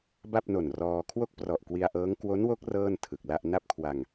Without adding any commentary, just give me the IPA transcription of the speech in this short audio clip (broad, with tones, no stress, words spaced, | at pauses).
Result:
ba˥˩p̚no˨˩n rɔː˧ kʰwo˥˩k̚prɔ˨˩ʔ kwi˧a̯ʔɤː˦˥ŋ kwo˦˥nwo˦˥k̚ rɤː˥˩ntʰɯ˨˩k̚la˥˩ʔ na˥˩p̚kʰwa˧ŋ